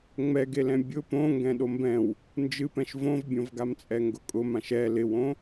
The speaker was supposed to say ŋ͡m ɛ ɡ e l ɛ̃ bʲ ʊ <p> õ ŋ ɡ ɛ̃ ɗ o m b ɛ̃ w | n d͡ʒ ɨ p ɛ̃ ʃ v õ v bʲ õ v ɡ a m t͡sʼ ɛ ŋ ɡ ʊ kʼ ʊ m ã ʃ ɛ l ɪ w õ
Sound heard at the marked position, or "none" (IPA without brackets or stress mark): p